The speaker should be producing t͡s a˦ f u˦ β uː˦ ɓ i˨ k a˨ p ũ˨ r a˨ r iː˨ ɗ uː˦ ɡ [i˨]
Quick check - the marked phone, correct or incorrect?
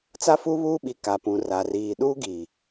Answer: correct